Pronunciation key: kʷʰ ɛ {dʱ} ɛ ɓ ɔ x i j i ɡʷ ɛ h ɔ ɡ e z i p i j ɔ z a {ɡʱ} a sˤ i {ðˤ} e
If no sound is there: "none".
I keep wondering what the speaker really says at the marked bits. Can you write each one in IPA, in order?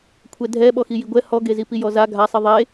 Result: dʱ, ɡʱ, ðˤ

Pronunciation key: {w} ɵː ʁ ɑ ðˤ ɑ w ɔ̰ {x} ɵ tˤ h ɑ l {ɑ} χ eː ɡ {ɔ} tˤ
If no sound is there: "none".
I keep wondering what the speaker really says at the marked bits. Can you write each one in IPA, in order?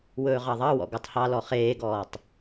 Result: w, ɡ, ɔ, ɔː

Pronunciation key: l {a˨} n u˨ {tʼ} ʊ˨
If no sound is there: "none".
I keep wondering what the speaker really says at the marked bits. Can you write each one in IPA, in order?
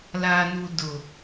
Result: a˨, d

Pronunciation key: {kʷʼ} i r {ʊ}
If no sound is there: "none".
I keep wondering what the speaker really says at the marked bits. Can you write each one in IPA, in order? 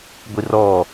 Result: ɡʷ, ɔ

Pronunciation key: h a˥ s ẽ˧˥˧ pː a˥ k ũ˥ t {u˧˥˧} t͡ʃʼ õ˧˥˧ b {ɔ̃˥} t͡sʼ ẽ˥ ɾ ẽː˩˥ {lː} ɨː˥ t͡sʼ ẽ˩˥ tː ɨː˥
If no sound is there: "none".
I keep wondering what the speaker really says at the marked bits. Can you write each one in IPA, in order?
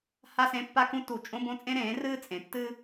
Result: u˧˩˧, õ˥, r

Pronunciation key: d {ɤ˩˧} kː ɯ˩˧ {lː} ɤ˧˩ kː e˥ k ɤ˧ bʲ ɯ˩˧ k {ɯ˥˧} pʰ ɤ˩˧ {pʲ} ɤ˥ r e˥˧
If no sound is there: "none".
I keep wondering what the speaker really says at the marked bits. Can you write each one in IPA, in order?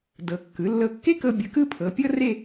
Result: ɤ˩˧, lː, ɯ˥˧, pʲ

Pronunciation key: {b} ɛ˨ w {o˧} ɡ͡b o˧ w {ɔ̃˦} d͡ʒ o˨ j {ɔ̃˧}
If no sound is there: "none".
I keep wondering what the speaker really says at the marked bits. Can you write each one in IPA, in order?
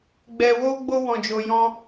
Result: ɡ͡b, o˧, ɔ̃˨, ɔ̃˧

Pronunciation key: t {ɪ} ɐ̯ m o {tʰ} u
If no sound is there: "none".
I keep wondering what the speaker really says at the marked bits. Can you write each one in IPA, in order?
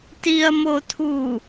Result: i, tʰ

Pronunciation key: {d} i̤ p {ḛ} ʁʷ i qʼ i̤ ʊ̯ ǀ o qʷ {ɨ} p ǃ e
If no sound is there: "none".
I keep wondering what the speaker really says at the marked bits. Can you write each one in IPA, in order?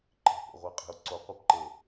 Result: ǃ, ḛ, e

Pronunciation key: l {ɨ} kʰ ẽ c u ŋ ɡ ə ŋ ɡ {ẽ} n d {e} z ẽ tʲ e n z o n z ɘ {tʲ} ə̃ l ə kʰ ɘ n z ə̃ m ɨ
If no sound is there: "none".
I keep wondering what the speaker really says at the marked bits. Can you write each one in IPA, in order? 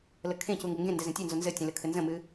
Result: ə, ẽ, ɛ, tʲ

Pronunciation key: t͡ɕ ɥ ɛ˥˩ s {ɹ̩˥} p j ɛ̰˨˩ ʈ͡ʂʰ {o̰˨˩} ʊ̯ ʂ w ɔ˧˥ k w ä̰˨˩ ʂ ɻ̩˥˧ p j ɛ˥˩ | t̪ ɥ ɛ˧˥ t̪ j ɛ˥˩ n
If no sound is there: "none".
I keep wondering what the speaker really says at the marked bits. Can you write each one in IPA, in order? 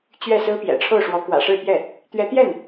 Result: ɹ̩˥, o˥˩

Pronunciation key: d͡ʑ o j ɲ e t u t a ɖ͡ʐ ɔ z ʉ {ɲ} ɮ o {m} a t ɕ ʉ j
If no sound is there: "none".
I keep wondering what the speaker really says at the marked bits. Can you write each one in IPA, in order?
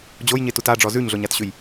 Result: ɲ, ɲ

